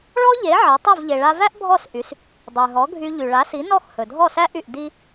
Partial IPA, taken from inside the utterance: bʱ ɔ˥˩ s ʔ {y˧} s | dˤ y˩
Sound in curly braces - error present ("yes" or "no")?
yes